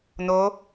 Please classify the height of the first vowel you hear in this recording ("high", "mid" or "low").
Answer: mid